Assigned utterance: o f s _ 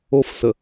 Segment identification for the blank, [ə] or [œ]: ə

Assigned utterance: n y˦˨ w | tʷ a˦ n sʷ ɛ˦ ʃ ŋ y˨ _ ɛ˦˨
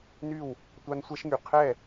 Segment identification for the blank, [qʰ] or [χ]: qʰ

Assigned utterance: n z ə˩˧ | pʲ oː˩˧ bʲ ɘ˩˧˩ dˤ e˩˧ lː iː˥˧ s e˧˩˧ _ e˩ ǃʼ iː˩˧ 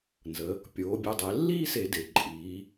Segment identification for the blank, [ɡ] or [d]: d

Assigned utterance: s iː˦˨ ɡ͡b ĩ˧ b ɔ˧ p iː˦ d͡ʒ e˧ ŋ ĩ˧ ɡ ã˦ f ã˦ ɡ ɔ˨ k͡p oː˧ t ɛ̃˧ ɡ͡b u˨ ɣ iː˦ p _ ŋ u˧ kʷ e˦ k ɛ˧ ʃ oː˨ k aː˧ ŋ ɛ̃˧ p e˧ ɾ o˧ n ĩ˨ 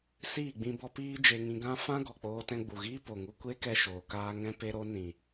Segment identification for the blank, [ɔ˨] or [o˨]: o˨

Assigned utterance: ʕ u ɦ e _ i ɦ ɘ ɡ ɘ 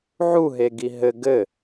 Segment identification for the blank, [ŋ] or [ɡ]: ɡ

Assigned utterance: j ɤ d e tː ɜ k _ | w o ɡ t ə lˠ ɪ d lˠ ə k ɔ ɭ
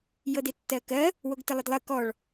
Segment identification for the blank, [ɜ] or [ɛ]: ɜ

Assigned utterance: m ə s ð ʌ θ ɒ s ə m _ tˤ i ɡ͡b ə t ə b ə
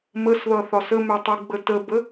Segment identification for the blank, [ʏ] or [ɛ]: ʏ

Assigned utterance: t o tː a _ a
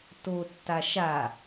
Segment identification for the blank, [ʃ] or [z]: ʃ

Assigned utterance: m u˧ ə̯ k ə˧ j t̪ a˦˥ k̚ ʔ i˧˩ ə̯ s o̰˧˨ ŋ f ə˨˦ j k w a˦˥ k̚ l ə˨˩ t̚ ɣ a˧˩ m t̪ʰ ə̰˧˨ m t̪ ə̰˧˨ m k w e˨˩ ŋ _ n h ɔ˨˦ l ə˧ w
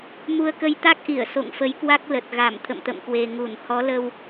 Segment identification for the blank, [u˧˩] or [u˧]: u˧˩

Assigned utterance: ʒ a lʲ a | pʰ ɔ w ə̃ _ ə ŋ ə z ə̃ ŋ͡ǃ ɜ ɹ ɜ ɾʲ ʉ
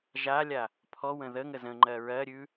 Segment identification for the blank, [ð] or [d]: ð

